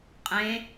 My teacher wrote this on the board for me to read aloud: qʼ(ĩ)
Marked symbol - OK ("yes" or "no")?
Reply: no